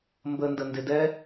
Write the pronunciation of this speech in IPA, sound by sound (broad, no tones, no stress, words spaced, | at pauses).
mbəndə ndɪdɛ